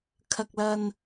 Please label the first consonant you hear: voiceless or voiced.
voiceless